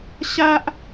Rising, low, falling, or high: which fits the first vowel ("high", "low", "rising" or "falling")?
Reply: high